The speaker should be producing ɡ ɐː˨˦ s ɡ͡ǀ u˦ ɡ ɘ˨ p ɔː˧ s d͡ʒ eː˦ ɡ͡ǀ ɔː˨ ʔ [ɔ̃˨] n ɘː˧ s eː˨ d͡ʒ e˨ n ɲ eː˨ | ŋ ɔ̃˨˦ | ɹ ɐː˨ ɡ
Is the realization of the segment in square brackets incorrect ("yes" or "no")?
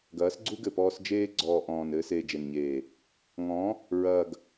yes